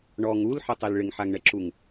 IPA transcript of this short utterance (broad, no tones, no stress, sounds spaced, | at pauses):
ɳ ɔ ŋ u l ħ ɪ tˤ i l ɭ ɪ ŋ ħ a ŋ ɳ ɛ ǁ u ŋ